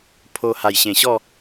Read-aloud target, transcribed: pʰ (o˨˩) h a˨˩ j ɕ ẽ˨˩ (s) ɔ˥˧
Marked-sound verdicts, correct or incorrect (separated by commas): incorrect, incorrect